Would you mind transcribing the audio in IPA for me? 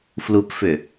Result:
flupfʏ

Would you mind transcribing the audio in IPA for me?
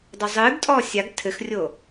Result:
dˤozˤɨːɡtʼɔː sʲaɡ tʰɘxrʲo

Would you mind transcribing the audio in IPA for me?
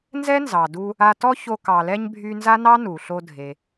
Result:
nzɛ˥nzɑ˩du˧ | a˧ tɔ˥ ço˧ kɑ˩lɛ˧ɲ bʱy˧nza˥nɑ˥ nu˩ɬo˧ dʱe˩

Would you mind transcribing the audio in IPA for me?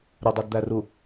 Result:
ɾʊdˤɛdd̪æru

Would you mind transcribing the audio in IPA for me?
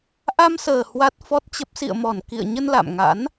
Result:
ʔa˧msəː˨˩ hwa˦˥t̚fɔ˦˥t̚t͡ɕə˦˥p̚ sḭ˧˨ə̯mɔ˧˩n kḭ˧˨ə̯ɲə˧nla̰˧˨mŋa̰˧˥n

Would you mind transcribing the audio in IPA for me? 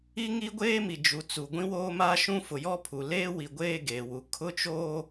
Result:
i˦ ŋi˦ɡʷeː˦mi˨ d͡ʒu˨t͡su˨ ɡʷĩ˦woː˦maː˦ ʃũ˦fʊ˨ jɔ˦pʰu˨leː˦ wi˨ɡʷeː˦˨ ɡeː˨wu˨ kʰʊ˦t͡ʃoː˦

